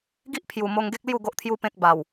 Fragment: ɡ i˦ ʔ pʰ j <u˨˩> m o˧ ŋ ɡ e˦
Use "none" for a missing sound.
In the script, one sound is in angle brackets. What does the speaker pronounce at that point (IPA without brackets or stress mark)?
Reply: u˨˩